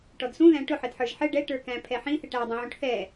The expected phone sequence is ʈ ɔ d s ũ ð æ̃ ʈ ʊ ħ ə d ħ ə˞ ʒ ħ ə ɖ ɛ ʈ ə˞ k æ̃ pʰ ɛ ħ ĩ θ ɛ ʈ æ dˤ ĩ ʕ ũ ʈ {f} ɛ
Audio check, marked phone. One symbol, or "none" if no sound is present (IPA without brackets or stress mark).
θ